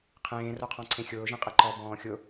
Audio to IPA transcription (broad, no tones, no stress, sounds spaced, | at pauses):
qʰ ẽː r o qʰ ɔ̃ ǀʰ ẽ xʲ ʊː ʒ ẽ qʼ e ǃ ɔ b ɔ̃ː xʲ ʊ